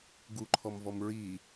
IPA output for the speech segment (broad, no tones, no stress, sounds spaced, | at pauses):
ɡ u ǃʰ ɔ m v ɔ m ɹ i